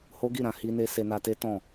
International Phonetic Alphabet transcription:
h o˦ ɡ i˦˨ ɾ ã˧ h i˦ n e˦ s e˧ n a˧ t e˦ t ɔ̃˦˨

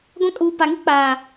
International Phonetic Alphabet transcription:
ɡʷ ã˦ kʼ uː˨ p a˨ ŋ i˦ k͡p aː˨

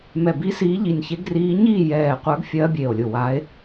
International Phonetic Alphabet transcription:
m ɛ˧˩ b i˧˥ s iː˧˥ ʎ i˧˩ nʲ ç e˧˥ ɡ r iː˧˥ ɲ iː˥˨ j ɛː˧˩ qʷ ə˞˧˥ ɡ fʲ ɜː˧˥ bʲ e˧˩ o̯ lʲ ʊ˧˩ w a˧˥ e̯

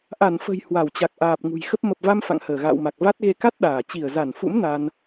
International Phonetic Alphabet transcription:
ʔ a˧˩ n f ə̤˨˩ j h w a˧˩ w t͡ɕ a˨˩ k̚ ʔ aː˨˩ p̚ ŋ ṳ˨˩ j x ə˦˥ p̚ m ə˨˩ p̚ v a˧ m f a̰˧˨ ŋ h əː˧˩ ɣ a̰ː˧˨ w m a˨˩ k̚ v a˦˥ t̚ ɣ e˧ k a˦˥ t̚ ɗ aː˧˩ t͡ɕ i˧˩ ə̯ z a˧˩ n f ṵ˧˥ m n a˧ n

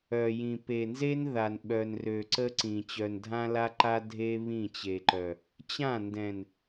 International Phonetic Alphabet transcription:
œ˨ j ĩ˨ p e˨ n z e˦ n ð a˨ n ɓ œ˨ n r ø˨ ǀ ə˦ ǀ ĩ˨ t͡ɕ œ˨ n dʱ ã˦ l a˦ ǃ a˦ dʱ e˦ β ĩ˦˨ t͡ɕ e˨ ǃ œ˨ | t͡ɕ ã˦˨ n d ɛ̃˨ n

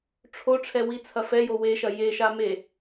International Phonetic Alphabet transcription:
ʈ͡ʂʰ o ʈ͡ʂʰ ɛ w i t͡sʰ ɐ f ɛ j o w e ʃ ɐ j e ʃ a m e

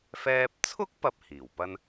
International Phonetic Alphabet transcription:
f ɛː˧ p̚ t͡sʰ ʊ˥ k̚ p ɐ˥ p̚ h iː˨˩ w p ɐ˥ n

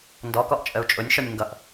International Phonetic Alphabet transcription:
n d ɔ k ɔ ʔ t͡ʃʼ ə u̯ t͡ʃʼ ʊ nʲ ʃ ɔ nʲ ŋ ɡ ʌ ʔ

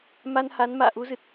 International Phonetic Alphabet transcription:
m a˧ n h a˨˦ n m a̰ː˧˨ ʔ u˨˦ z ɨ˨˩ t̚

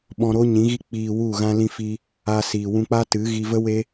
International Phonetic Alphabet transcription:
ɓ ɔ̃˧ ɾ oː˦ ɲ ĩ˨˦ ɣ i˦ k͡p iː˧ w u˦˨ ɣ ã˦ l ĩ˧ f i˧ | a˧ s iː˨ w ũ˧ k͡p a˦ t ɨ˨˦ ɣ i˧ v ə˦ w e˦

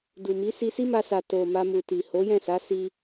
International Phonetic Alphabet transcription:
d u˨ m i˨˦ s i˧ s i˦ m a˧ s a˨ t o˨ m a˧ m u˨ t i˨ h o˨˦ j ɛ̃˦˨ s a˨˦ s i˧

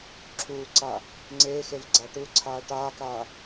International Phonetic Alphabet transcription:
ǁʰ uː ǀ aː | ŋ͡ǀ eː x e v ɡ͡ǀ a ʈ u ǀʰ aː ʈ aː k aː

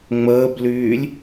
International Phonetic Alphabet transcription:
ŋ͡m əː b l yː lʲ

